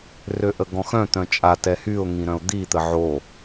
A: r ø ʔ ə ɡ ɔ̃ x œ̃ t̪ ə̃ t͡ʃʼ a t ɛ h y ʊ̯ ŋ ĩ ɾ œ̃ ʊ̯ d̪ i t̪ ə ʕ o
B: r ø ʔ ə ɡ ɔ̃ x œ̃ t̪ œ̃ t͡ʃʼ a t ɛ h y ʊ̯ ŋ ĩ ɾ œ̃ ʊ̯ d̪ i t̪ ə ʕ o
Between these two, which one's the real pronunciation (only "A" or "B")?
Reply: B